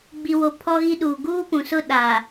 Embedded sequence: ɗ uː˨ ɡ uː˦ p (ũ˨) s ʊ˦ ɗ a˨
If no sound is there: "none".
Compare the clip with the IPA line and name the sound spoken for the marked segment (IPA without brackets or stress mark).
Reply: ũ˨